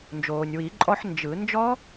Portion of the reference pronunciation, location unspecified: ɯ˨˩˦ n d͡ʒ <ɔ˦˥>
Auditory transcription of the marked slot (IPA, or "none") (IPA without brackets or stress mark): ɔ˦˥